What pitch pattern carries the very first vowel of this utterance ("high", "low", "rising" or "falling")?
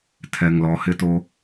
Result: low